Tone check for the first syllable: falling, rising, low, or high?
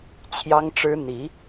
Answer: high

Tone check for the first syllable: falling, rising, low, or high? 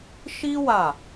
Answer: high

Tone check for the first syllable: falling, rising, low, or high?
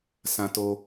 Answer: low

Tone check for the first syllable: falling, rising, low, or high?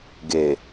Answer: low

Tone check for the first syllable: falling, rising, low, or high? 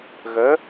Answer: rising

